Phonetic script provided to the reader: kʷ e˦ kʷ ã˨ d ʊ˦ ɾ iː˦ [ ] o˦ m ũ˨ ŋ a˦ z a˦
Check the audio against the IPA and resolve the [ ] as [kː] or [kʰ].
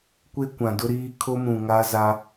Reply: kʰ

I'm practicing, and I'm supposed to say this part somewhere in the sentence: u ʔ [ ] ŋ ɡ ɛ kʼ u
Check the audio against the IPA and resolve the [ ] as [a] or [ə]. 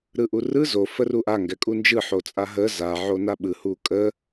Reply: a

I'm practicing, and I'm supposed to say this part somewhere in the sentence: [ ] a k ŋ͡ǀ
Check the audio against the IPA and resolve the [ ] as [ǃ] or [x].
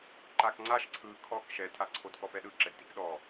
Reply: ǃ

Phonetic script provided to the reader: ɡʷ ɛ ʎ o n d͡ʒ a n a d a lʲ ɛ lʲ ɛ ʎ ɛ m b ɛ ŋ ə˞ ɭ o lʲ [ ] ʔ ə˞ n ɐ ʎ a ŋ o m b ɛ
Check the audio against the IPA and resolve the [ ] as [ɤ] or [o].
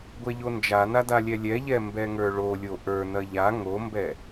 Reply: o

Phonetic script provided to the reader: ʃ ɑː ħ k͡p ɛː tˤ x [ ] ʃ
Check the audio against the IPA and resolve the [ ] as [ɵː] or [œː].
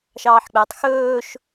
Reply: ɵː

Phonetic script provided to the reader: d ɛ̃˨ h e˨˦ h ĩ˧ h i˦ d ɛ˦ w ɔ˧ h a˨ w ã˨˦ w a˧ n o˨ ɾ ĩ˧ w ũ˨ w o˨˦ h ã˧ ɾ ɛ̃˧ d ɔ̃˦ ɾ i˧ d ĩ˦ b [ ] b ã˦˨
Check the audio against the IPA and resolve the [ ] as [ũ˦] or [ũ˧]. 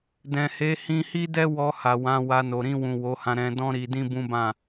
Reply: ũ˦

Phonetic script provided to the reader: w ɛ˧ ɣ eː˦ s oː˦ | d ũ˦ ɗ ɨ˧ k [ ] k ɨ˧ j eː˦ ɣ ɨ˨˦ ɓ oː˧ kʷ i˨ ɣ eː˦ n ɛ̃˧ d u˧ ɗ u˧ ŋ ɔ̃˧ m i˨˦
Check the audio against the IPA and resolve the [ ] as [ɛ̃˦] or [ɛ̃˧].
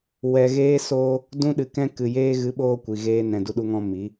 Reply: ɛ̃˦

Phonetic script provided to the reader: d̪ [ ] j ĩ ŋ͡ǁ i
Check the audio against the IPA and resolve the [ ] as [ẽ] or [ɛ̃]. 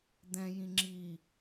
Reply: ɛ̃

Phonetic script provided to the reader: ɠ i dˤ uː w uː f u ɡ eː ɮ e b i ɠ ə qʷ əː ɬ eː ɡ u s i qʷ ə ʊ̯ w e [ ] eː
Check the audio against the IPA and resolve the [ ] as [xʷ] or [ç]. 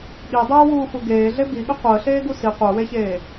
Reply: ç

